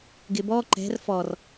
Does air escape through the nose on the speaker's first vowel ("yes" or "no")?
no